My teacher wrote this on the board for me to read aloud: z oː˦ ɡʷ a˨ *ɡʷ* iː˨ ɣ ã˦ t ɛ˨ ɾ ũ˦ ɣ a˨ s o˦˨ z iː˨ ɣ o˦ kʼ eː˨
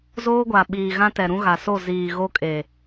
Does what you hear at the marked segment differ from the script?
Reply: yes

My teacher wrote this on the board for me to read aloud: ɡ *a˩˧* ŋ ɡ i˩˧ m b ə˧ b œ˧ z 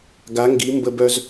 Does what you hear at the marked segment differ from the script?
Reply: no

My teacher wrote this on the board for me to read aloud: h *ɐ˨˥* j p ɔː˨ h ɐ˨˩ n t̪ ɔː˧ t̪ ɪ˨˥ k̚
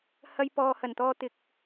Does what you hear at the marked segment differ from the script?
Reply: yes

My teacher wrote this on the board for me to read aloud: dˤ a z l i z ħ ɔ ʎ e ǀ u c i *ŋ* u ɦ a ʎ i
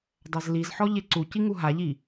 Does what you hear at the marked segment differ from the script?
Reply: no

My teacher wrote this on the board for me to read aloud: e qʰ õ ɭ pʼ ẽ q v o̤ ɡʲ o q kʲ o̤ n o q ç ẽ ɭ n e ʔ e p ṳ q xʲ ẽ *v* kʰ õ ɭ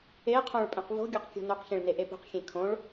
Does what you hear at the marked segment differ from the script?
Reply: yes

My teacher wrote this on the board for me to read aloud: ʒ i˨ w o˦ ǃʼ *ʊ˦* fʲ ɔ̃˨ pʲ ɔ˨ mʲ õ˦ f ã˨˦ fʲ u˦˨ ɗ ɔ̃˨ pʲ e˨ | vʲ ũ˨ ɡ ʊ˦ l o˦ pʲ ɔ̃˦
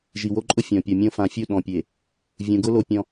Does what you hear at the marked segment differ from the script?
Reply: no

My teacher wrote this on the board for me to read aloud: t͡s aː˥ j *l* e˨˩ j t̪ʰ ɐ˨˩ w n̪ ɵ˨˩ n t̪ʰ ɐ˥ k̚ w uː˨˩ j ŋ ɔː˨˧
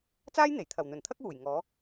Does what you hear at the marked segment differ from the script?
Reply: yes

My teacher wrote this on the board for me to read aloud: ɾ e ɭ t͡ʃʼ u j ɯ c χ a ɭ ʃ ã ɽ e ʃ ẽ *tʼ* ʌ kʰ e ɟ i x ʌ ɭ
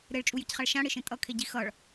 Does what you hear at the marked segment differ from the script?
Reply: no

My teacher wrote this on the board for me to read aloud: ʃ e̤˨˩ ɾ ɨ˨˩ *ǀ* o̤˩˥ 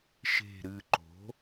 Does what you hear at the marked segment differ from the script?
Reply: yes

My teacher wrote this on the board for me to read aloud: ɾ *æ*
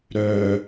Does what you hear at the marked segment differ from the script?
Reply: yes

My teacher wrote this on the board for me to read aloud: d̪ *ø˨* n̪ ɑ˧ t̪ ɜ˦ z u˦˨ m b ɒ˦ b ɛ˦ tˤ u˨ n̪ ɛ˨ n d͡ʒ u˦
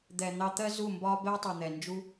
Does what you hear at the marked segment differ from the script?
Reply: yes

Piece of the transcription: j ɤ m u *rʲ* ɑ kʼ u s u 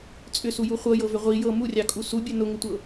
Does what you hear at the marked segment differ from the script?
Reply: no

